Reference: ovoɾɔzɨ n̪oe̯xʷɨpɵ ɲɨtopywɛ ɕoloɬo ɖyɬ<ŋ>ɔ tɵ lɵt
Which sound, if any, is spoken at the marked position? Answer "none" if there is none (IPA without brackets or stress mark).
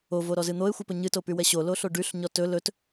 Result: ɲ